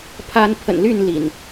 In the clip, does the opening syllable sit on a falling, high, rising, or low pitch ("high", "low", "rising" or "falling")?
high